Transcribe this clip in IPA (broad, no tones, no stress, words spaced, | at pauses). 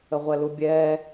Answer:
əʁʷɛlubʲɛː